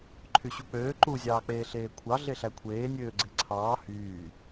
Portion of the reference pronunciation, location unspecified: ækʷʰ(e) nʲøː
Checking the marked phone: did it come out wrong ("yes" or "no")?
yes